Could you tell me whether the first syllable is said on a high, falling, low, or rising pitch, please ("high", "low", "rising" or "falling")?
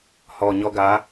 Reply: low